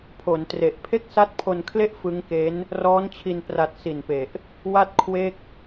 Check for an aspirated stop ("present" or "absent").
present